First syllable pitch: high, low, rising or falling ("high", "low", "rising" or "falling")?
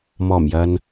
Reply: low